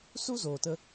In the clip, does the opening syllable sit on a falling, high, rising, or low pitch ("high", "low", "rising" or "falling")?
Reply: high